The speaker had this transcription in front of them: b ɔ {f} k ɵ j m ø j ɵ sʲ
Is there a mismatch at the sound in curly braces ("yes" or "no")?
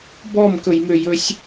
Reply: yes